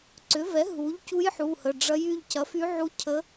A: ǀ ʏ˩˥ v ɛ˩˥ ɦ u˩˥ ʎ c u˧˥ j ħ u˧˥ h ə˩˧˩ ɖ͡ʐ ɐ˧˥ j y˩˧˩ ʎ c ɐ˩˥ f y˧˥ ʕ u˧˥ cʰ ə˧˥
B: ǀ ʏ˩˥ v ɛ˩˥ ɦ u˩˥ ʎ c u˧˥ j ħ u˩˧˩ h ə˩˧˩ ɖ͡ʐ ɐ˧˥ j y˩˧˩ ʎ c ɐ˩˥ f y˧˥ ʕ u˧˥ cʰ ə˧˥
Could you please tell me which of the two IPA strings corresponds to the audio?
B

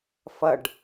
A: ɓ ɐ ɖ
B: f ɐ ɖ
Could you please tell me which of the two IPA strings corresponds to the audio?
B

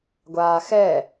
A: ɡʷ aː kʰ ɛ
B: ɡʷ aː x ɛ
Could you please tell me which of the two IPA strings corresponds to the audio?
B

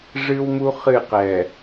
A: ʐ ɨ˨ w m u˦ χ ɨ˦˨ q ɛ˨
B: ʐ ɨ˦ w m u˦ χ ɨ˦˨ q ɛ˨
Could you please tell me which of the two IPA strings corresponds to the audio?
B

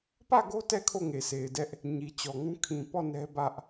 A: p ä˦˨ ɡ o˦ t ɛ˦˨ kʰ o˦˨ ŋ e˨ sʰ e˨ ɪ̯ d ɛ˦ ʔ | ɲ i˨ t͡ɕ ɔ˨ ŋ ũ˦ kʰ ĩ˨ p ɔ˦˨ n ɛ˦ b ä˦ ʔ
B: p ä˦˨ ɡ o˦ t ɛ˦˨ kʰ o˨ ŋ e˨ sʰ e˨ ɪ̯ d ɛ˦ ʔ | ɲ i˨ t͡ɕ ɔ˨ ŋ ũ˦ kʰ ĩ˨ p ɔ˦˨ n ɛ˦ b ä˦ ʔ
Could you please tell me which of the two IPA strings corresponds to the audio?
A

